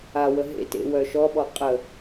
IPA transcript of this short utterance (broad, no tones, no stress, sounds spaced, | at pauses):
a w ə ɦ ḛ t ḛ w œ ʃ ɔ ɓ ɔ qʼ ə